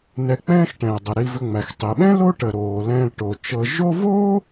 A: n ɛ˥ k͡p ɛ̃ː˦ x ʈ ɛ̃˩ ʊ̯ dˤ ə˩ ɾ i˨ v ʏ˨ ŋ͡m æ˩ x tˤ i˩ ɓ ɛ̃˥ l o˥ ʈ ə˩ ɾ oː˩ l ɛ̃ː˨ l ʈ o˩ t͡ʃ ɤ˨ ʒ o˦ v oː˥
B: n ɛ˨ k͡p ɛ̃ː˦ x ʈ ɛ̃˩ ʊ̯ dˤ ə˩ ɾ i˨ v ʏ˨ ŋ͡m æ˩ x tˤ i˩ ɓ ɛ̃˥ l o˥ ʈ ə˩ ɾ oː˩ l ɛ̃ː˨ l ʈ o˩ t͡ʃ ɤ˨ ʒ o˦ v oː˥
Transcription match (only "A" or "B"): B